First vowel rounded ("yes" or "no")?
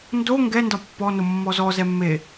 yes